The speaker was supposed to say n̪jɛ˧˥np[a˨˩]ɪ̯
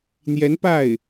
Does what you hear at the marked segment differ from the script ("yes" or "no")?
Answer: yes